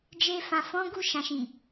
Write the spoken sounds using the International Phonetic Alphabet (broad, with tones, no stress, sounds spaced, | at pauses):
d͡ʒ e˧ f ã˨ f ɔ̃˨˦ ɡ u˦˨ ʃ ã˨ ʃ ĩ˨